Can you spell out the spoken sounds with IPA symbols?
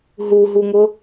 ɦuɦuŋʊ

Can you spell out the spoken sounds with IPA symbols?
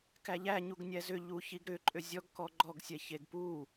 kæʎæ ɲuɡnʲæzʏ ʎuçiɡɾʏ ǃʼʏzʲɔɡ kɔɡ͡ǃɔɡsʲɛ çeɡpu

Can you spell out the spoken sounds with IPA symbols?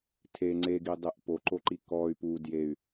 tʰe ŋ͡ǀeɡidˤeʔ poǃoǃi kɔy̯ pu djey̯

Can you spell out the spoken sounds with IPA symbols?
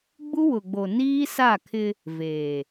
ɡ͡bu˦wʊ˨ ɡ͡bo˨niː˦sa˦˨kʰɪ˦ | veː˨

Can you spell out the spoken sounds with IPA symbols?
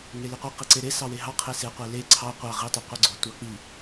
ŋeliqʷi qiǀeɾe sɑweɦɑ qʰese qʷele ǀʰɑ qʷɑ ʁi tˤɑqʷeɡ͡ǀo tʷɑk͡pi

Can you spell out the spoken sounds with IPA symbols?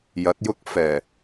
jɐ˨˥t̚jʊ˥k̚fɛː˨˩

